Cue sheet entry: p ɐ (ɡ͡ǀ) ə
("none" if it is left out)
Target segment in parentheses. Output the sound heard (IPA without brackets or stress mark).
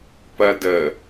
d